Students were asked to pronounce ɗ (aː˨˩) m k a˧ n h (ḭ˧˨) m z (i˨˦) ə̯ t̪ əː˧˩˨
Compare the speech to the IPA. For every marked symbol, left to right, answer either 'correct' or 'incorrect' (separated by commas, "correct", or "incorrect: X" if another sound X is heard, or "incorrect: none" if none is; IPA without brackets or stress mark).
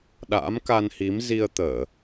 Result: incorrect: a̰ː˧˥, incorrect: i˨˦, incorrect: i˧